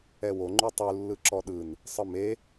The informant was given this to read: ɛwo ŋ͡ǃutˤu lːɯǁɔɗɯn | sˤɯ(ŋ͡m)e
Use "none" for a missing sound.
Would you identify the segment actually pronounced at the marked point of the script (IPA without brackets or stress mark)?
m